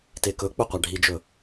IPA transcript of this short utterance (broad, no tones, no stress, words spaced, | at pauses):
tekɵk͡pɵ qʷaɖʱid͡ʒɵ